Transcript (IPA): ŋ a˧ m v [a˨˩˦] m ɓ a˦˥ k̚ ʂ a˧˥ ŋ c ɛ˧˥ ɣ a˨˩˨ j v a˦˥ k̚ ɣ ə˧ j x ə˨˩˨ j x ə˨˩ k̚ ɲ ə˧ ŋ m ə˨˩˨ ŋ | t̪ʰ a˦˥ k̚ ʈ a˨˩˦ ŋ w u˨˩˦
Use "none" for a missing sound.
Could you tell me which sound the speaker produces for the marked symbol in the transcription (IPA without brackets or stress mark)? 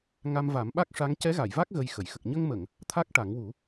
a˨˩˦